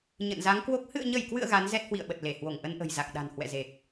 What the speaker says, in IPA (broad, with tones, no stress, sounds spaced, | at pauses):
ɲ ə̰˧˨ n z a˨˦ ŋ k w o˦˥ k̚ h ɨ̰˧˨ ə̯ ɲ ə˧˩ j k w ɨ̰˧˨ ə̯ ɣ a˨˦ n z ɛ˦˥ t̚ h w ḭ˧˨ ə̯ ɓ ə˨˩ t̚ l e˧˩ h w o˧˩ ŋ ʔ ə˧ n ʔ ə̤˨˩ j z a˨˩ k̚ ɗ a̤˨˩ n h w ɛ̰˧˨ z e˨˩ k̚